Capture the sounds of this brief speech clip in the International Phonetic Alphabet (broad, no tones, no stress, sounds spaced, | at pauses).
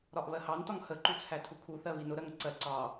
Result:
ɾ ɒ ʔ β ɜ h ɑ n t ɒ ŋ h ə ǃ u t͡sʰ æ tʰ u kʰ u θ ɜ β i n ʊ ɾ ɜ ŋ ə ǀ ɜ ǀ ɑ